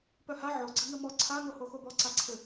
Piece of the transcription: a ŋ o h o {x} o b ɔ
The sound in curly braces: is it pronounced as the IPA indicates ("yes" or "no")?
yes